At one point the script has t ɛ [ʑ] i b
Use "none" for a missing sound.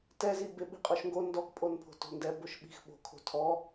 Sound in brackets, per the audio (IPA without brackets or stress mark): z